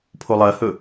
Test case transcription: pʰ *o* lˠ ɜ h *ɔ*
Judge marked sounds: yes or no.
yes, no

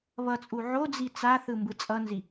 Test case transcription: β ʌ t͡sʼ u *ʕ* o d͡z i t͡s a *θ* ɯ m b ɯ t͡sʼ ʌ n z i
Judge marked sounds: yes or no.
yes, yes

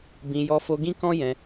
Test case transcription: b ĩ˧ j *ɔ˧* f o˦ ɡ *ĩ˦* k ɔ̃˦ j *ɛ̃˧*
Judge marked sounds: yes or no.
no, yes, yes

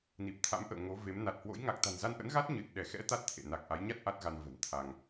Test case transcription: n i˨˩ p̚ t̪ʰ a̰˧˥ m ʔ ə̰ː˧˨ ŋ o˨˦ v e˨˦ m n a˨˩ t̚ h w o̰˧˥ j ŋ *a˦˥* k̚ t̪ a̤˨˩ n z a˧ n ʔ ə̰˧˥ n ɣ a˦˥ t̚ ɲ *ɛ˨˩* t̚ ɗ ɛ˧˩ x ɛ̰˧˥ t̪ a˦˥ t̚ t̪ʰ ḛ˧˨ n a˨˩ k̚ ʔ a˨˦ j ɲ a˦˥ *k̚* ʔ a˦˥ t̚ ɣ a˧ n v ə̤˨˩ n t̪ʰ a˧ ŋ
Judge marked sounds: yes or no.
no, no, no

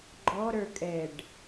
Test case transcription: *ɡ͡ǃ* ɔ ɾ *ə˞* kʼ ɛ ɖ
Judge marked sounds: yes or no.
yes, yes

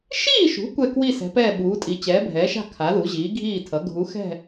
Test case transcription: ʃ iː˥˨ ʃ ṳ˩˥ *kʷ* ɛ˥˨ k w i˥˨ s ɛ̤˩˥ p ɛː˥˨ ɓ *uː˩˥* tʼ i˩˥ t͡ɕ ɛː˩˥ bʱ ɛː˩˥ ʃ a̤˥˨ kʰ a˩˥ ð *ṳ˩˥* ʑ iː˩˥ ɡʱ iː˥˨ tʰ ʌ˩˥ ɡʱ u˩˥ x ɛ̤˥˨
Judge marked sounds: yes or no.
yes, yes, no

